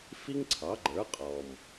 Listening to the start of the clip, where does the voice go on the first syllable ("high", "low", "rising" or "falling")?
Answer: high